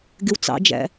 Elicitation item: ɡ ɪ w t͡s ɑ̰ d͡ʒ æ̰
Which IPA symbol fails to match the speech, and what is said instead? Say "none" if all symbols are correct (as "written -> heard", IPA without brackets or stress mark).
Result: none